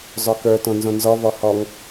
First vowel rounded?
yes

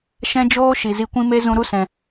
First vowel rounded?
no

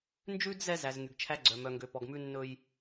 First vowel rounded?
yes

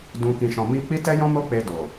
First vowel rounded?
yes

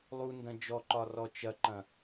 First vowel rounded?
yes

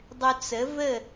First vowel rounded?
yes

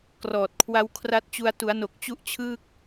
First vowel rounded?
yes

